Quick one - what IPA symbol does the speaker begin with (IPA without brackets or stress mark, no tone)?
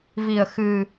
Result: v